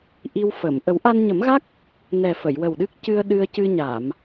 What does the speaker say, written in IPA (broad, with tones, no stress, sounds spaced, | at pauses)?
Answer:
ʔ i˧ w f ə˨˩˨ m ʔ ə˨˩˦ w ʔ a˧ n ɲ ə˨˩˦ m ɣ a˦˥ k̚ | n ɛ˨˩ f ə˨˩˨ j w ə˨˩ w ɗ ɨ˦˥ k̚ c ɨ˧ ə̯ ɗ ɨ˧ ə̯ c ɨ˧ ɲ a˨˩˨ m